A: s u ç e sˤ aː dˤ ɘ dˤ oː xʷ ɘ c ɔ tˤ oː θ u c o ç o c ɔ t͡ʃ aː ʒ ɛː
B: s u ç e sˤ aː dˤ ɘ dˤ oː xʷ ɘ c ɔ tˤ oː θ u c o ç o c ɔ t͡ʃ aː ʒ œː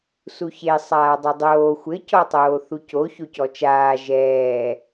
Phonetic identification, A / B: A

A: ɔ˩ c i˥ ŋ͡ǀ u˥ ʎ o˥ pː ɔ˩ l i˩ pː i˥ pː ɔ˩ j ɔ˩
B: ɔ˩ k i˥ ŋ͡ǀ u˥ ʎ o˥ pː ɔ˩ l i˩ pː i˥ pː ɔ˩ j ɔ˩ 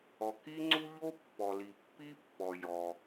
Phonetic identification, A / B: B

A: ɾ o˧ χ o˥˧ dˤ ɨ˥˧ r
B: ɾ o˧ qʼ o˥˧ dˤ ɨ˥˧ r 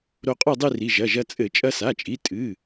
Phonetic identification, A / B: B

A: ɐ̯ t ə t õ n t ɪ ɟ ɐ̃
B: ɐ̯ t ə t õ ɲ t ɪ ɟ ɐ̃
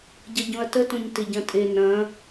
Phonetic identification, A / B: B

